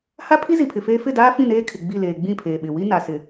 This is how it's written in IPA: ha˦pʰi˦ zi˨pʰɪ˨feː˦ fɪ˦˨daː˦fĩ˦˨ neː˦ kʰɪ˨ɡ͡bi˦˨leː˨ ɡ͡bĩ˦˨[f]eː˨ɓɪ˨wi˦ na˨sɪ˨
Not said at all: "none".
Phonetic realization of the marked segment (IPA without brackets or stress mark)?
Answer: pʰ